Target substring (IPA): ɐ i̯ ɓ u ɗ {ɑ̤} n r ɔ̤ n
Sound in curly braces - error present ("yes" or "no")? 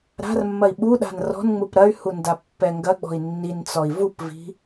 yes